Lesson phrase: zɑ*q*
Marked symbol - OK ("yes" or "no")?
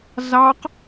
yes